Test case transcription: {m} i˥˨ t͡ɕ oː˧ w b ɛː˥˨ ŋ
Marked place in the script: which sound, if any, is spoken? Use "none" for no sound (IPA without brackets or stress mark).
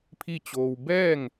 pʰ